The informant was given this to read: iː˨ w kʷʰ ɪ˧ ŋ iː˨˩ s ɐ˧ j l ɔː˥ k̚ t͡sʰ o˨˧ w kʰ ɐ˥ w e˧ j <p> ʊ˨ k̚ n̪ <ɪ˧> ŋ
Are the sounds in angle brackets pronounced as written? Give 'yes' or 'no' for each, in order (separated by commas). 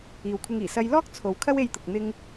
no, yes